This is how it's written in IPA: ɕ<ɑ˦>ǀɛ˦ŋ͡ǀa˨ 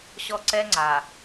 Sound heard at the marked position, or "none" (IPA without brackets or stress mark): ɔ˦